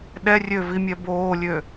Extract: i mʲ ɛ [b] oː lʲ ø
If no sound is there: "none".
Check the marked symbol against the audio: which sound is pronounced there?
b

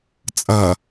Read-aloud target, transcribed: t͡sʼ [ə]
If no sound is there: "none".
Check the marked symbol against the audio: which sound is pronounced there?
ɐ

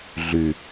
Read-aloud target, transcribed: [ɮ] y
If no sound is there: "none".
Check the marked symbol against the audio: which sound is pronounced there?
ɮ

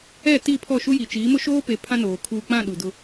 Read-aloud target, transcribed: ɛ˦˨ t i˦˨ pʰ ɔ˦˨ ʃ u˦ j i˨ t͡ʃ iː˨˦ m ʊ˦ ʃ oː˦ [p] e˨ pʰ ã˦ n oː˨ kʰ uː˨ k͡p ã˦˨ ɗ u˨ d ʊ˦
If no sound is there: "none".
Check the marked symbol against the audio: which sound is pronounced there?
p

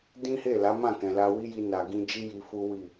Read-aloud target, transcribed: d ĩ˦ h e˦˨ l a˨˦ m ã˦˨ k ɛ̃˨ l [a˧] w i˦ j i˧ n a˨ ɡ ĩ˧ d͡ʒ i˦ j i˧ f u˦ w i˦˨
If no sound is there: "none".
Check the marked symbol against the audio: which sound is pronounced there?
a˧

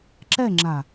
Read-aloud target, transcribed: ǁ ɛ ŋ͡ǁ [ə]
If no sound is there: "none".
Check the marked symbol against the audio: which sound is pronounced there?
a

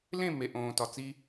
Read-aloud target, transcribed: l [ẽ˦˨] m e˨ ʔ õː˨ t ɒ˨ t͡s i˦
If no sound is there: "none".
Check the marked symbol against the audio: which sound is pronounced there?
ẽ˦˨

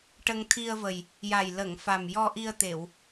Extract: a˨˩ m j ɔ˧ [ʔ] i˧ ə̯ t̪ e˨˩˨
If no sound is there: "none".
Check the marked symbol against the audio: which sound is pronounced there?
ʔ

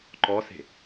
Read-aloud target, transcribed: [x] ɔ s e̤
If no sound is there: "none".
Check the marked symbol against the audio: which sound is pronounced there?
ǃ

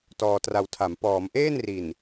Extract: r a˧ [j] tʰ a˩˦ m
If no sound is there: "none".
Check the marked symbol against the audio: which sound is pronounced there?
w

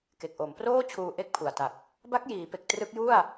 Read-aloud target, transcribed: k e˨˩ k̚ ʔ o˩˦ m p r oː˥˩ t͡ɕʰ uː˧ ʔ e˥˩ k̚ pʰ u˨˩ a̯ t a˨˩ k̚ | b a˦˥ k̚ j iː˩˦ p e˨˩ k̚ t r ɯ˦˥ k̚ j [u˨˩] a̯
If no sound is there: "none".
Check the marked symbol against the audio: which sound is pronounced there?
u˥˩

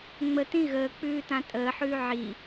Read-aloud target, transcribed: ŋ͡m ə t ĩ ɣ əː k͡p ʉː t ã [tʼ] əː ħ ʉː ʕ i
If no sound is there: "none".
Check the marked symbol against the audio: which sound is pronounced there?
tʼ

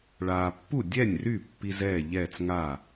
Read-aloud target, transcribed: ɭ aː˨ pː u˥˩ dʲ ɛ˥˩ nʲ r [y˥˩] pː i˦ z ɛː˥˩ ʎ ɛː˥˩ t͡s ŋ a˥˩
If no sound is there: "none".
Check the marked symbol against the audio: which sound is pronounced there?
y˥˩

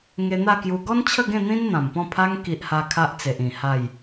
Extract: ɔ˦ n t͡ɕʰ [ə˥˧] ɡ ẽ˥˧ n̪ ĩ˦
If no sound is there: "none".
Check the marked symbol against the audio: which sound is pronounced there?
ə˥˧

